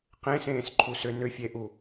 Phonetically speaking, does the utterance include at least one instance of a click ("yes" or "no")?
yes